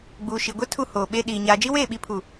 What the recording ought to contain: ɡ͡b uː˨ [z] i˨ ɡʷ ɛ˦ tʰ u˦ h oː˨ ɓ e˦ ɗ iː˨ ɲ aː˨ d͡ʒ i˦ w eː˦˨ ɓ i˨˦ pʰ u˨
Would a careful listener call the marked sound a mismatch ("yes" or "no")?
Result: yes